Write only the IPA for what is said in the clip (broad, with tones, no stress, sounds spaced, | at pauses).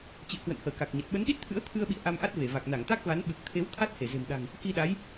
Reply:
t͡ɕ ḭ˧˨ ə̯ k w ə̰˧˨ n h əː˧˩ k a˨˩ k̚ ɲ ə˨˩ t̚ ɓ ə˨˦ n ɗ i˦˥ t̚ t̪ʰ ɨ̰˧˥ ə̯ t̪ʰ ɨ˧ ə̯ ɓ ḭ˧˨ ə̯ ʔ a˧ m ʔ a˦˥ t̚ v e˧˩ v a˨˩ k̚ n a˧˩ ŋ t̪ a˦˥ k̚ v a˨˦ n ɓ ɨ˨˩ k̚ t̪ʰ e˨˦ w t̪ʰ a˦˥ t̚ h e˧˩ z e̤˨˩ m ɗ a̤˨˩ ŋ | k i˧ ɗ a˨˦ j